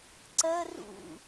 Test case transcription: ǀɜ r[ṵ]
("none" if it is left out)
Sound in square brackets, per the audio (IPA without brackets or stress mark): ṵ